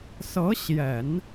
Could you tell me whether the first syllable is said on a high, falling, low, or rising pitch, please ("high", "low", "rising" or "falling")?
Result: rising